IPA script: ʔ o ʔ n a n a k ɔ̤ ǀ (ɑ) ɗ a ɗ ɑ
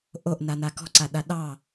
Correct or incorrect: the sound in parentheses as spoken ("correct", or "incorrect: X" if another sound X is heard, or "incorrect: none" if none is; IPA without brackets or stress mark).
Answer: incorrect: a